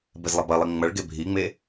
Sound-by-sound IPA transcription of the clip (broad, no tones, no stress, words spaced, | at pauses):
bezlˠɐbɐlˠi ŋ͡mɐɭɡe bʱiŋ͡me